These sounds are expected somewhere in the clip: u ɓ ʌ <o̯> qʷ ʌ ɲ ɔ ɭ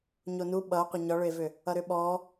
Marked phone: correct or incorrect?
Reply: correct